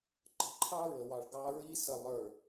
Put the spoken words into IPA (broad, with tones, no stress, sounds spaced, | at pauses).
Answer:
ǃ ə̤˨ ǃʰ ɑ˦ ɹ ə˨ w ɑ˨ ɭ ɡ ɑ˦ ɹ i˦ s ə˨ lˠ ə˞˨